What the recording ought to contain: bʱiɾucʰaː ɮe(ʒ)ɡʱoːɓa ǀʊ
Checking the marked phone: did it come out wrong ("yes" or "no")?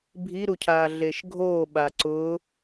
yes